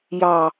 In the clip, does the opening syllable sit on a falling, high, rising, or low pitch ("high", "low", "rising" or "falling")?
low